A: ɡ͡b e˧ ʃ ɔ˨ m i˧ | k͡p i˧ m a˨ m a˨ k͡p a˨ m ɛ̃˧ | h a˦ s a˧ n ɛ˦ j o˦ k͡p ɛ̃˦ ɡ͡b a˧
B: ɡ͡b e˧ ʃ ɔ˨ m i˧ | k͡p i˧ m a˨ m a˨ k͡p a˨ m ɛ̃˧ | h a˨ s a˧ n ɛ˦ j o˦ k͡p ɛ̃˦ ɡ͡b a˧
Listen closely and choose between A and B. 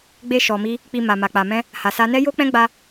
B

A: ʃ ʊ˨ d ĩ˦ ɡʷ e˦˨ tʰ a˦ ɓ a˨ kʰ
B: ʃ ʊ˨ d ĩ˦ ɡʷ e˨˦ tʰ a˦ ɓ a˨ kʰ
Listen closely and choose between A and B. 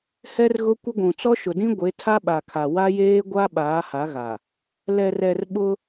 B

